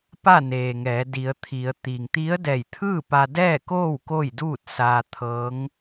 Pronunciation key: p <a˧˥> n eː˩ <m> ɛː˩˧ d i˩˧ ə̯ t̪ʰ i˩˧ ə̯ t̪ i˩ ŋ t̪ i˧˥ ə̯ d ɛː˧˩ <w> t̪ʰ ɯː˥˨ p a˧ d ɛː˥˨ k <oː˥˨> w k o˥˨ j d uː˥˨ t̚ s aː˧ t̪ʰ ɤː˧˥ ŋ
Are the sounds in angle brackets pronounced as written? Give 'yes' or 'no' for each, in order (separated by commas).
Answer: no, no, no, yes